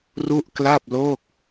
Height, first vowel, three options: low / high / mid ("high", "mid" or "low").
high